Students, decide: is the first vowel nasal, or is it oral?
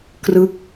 oral